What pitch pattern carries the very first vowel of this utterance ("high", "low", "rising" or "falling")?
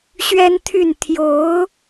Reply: high